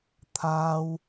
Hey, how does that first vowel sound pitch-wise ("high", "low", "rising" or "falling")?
high